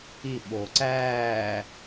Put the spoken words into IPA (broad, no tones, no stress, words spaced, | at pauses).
iɓoː ǀæː